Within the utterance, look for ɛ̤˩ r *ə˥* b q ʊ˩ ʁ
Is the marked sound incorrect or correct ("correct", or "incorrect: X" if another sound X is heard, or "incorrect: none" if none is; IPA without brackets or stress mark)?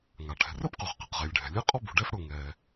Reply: correct